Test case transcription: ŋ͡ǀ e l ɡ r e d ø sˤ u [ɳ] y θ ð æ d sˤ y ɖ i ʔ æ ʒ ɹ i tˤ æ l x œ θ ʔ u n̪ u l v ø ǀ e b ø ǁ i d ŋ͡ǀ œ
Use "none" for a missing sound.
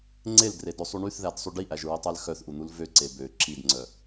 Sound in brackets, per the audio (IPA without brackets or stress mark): ɳ